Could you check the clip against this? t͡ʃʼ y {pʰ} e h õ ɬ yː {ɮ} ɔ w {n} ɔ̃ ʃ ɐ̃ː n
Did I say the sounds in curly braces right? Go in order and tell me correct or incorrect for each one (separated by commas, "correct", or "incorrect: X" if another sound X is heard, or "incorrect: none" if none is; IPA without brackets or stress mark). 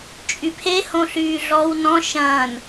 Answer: correct, correct, correct